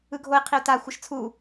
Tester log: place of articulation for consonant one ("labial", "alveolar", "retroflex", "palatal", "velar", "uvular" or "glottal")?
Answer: velar